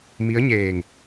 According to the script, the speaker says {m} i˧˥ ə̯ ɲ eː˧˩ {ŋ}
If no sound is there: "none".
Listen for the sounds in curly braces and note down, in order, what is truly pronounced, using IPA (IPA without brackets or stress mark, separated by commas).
m, ŋ